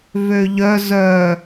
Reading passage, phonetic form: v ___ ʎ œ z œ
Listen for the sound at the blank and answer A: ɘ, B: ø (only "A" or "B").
B